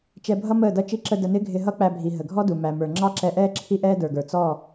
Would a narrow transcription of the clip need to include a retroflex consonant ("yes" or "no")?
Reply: no